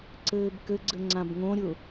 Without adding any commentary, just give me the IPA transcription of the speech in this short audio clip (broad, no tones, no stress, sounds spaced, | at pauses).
ǀ ɘː b k ɘ ɡ͡ǀ ɘ ŋ͡ǀ ã b ŋ õ ɾʲ ʊ